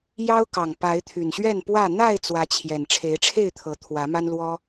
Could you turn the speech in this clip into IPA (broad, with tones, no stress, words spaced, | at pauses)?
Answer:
jɑ˦ʊ̯kɑ˨˩ŋ pa˨˦ɪ̯t̪ʰy˨˩nɕɥɛ˥˨npwä˥˨ n̪a˥˨ɪ̯ t͡swä˨˦t͡ɕʰjɛ˨˩n ʈ͡ʂʰe˨˦ɪ̯ʈ͡ʂʰe˥˨ɪ̯t̪ʰɤ˨˦ t̪ʰwä˨˦ma˦nlwɔ˦